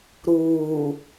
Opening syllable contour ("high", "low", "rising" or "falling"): low